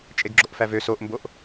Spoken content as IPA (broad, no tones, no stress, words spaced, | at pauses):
t͡ʃʼeɡɡ͡ǁoʔfævø soʔmboʔ